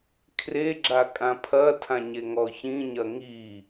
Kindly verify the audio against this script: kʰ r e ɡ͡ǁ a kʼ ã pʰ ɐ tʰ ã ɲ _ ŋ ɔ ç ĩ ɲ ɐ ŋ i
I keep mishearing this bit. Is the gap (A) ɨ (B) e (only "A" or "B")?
B